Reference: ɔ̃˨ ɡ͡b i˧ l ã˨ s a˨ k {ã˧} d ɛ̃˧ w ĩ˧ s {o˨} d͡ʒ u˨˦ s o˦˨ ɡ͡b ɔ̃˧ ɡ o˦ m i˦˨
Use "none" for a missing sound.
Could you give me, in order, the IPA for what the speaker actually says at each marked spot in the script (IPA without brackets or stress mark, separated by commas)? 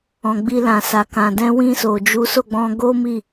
ã˨, o˨